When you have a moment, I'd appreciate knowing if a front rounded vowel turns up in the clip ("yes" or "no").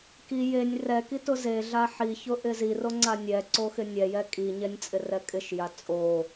no